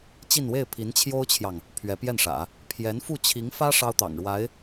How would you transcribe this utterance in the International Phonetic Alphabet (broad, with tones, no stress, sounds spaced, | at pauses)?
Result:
t͡ɕ i˥˧ n w e˥˩ ɪ̯ pʰ i˧˥ n t͡ɕʰ j o˥ ʊ̯ t͡ɕʰ j ɑ˨ ŋ | pʰ ɥ ɛ˧˥ p j ɛ˥˩ n ʂ ä̰˨˩˦ | pʰ j ɛ˧˥ n f u˥˩ t͡ɕʰ i˧˥ ŋ f ä˥ ʂ ɑ˥ ʊ̯ t̪ ɑ̰˨˩ ŋ ɻ w a˧˥ ɪ̯